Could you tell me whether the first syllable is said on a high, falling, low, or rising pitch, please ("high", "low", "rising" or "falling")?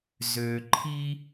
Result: low